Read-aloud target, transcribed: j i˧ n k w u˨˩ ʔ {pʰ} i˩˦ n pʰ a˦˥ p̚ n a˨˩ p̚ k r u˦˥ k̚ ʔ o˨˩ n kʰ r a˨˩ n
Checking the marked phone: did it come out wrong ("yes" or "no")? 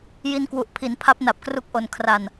no